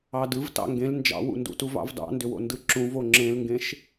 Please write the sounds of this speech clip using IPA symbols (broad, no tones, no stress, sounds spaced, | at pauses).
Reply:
ɑ d ɯ v t ɑ̰ ŋ ɡ ẽ l n d͡ʒ ɑ̰ w ṵ n d ṵ t u v ɑ̰ v d ɑ̰ n d ʏ w o̰ n d ɯ ǁ ũ v o ŋ͡ǁ ẽ l ŋ ɡ ẽ ʃ